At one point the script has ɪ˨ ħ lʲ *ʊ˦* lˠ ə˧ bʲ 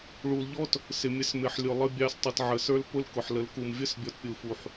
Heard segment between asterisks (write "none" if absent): ʊ˨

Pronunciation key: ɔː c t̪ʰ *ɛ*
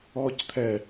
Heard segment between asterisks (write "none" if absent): ɛ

